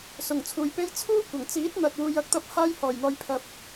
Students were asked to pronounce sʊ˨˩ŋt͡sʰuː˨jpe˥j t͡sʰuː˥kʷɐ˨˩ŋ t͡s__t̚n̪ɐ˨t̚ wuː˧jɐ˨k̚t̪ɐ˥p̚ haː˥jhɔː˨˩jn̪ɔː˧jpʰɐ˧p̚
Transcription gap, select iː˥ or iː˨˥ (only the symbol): iː˨˥